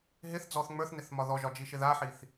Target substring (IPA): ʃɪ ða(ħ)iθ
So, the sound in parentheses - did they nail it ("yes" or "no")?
yes